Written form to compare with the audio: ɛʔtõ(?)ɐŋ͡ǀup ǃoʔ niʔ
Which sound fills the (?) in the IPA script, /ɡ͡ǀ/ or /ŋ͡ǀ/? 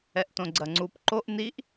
ɡ͡ǀ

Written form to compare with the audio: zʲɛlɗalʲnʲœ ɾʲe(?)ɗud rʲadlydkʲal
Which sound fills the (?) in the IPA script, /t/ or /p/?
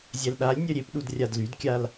p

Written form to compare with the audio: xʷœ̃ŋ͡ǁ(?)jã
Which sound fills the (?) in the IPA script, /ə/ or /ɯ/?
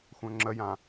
ə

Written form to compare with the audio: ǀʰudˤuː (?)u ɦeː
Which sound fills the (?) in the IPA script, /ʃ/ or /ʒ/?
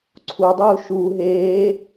ʃ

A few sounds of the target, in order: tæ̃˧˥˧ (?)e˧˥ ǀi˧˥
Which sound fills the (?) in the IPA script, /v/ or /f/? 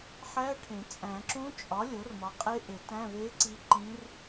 v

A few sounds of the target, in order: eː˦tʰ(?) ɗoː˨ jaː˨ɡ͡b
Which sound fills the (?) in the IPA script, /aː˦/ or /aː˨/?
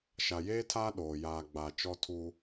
aː˦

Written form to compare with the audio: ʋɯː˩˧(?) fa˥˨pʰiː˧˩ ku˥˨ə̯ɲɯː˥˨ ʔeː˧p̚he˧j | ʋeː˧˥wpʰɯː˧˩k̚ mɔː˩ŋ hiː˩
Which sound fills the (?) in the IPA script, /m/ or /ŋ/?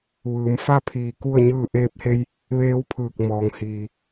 m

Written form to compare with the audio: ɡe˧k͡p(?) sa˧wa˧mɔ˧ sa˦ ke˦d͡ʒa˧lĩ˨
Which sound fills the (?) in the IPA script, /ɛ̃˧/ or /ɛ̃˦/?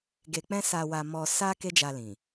ɛ̃˦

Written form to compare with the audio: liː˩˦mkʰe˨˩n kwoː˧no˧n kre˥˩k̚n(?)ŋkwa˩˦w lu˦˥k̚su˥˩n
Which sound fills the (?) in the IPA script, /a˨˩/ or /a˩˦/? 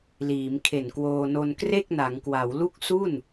a˩˦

